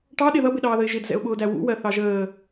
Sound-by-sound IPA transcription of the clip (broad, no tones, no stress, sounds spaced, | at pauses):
ʈ ɑ ɗ ɪ ð ʌ b ɪ ɗ ɑː ð ə ɪ̯ ʒ ɪ d z ɛ̰ ʊ̯ ɓ ʊː d æ w ṵ w ɜ θ ɑ ʒ əː